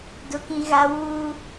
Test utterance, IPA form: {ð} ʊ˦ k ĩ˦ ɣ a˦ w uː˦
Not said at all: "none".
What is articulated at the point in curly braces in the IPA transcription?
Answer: d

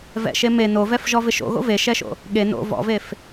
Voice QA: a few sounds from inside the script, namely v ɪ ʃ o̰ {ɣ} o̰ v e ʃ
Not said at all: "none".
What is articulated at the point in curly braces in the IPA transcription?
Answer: ɣ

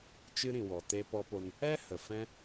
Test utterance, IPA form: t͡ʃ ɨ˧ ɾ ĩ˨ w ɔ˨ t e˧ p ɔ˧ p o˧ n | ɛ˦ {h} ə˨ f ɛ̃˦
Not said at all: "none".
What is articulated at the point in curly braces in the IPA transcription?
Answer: h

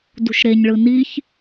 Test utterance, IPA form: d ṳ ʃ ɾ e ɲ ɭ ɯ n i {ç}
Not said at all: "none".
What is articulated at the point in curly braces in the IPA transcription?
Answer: ç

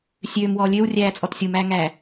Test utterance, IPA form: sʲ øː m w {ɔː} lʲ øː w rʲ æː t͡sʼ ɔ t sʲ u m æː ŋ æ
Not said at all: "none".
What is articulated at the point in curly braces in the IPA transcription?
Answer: ɔː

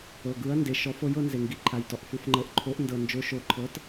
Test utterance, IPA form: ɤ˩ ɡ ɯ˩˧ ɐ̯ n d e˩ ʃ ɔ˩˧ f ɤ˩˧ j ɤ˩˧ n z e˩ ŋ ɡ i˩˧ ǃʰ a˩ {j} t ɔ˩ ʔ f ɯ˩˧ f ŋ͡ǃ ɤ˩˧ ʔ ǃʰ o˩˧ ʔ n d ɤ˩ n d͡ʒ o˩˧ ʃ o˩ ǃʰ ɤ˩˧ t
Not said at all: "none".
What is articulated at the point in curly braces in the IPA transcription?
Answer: j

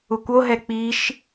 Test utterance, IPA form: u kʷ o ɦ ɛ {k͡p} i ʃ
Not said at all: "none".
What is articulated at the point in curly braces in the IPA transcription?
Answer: k͡p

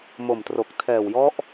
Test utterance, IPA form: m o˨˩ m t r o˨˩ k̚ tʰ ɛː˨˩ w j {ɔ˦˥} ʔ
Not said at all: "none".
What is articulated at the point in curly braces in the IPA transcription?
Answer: ɔ˦˥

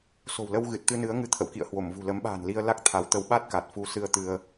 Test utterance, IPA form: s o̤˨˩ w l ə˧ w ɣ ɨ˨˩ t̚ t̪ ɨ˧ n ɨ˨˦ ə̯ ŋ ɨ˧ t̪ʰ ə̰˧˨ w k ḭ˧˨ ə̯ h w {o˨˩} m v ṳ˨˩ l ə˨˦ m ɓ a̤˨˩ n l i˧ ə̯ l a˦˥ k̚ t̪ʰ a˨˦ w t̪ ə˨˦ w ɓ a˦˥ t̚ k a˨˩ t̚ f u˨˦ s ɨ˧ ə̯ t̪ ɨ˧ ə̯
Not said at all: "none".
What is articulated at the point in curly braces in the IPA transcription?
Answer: o˧˩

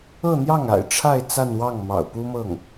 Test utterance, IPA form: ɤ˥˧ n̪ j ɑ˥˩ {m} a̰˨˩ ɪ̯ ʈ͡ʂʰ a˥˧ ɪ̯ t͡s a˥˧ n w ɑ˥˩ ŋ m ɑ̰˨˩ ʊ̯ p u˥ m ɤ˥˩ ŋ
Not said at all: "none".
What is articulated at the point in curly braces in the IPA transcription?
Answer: ŋ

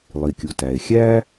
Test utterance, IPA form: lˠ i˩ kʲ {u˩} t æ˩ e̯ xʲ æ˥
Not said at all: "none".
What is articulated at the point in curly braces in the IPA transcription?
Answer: u˩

